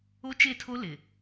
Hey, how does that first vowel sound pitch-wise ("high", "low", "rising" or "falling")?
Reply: high